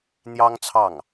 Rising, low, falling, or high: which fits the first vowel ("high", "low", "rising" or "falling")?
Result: high